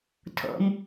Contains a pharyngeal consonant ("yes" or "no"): no